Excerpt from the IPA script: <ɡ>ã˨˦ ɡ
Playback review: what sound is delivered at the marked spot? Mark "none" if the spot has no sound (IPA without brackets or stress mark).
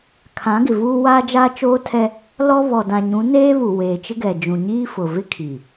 kʰ